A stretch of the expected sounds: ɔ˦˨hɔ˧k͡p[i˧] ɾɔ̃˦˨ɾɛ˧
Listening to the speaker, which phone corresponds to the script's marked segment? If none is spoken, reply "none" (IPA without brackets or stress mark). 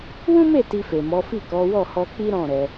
i˦